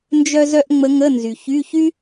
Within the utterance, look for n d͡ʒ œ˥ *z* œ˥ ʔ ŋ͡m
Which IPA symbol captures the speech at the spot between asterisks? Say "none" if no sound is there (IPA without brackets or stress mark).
z